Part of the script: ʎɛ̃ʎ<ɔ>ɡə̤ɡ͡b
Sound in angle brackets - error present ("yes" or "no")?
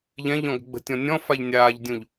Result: yes